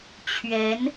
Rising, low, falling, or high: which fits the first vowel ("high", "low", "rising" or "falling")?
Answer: rising